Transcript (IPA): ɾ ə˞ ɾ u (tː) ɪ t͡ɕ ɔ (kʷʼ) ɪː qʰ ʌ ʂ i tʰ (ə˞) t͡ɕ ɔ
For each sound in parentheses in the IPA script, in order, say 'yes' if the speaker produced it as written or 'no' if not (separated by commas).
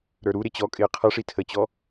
no, no, no